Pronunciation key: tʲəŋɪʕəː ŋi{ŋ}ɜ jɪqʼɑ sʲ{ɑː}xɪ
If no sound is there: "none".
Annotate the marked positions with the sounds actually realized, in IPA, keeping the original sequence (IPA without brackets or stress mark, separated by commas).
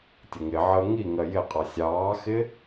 ŋ, ɑː